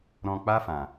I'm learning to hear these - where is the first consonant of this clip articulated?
tongue tip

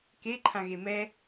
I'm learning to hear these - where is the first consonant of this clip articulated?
velum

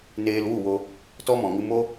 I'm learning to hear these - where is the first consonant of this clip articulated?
tongue tip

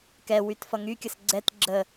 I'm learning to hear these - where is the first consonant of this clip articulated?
velum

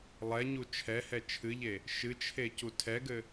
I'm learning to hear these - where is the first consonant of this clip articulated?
tongue tip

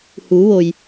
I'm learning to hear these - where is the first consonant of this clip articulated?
throat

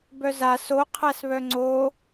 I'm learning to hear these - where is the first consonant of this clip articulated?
lips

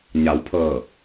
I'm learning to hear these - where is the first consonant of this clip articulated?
palate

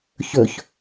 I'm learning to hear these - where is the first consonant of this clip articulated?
palate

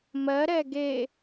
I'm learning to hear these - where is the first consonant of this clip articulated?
lips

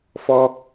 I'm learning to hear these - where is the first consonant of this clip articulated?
lips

